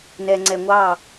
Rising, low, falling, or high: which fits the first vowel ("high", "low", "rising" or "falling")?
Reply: low